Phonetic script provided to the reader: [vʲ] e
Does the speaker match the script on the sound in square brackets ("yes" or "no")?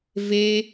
no